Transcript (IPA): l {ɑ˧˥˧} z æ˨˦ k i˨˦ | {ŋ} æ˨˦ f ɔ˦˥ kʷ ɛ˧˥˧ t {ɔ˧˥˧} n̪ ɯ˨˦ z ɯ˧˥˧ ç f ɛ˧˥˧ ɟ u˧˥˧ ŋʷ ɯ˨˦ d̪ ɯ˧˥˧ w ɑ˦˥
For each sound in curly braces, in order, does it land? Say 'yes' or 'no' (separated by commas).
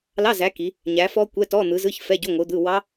yes, no, yes